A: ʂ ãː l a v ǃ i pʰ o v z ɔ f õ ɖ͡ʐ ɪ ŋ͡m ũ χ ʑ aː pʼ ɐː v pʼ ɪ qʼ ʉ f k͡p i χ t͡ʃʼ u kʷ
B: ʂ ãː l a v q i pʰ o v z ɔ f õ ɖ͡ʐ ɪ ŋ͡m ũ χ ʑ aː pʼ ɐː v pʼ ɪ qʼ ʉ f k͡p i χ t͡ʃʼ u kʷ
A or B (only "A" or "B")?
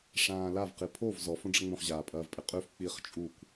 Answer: B